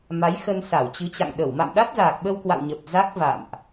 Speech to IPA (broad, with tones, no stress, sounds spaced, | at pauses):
m a˨˦ j x ə˧ n s a˧˩ w t͡ɕ ɨ˨˦ t͡ɕ a̰˧˨ ŋ ɗ ə˧˩ w m a̰˧˨ m ɗ a˦˥ t̚ z aː˨˩ k̚ ɓ ə˧ w k w a̰˧˨ w ɲ ə˨˩ p̚ z a˦˥ k̚ v a̰˧˨ m ʔ